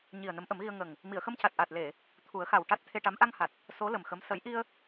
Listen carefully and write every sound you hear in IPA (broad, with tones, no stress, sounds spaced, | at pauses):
ɲ i˨˩ ə̯ n ə˧˥ m ʔ ə˨˩˦ m ɣ i˧ ə̯ ŋ ə˨˩ ŋ | m i˨˩˨ ə̯ x ə˧ m c a˨˩ t̚ ʔ aː˨˩ t̚ l e˨˩˨ | t̪ʰ u˨˩˦ ə̯ x a˨˩ w ʈ a˦˥ t̚ t̪ʰ e˧ ʈ a˧˥ m ʔ a˧ ŋ h a˨˩ t̚ | s o˧˥ l ə˨˩ m x ə˧˥ m s ə˨˩˦ j ʔ i˧ ə̯